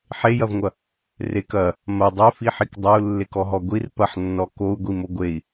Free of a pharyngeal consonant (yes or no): no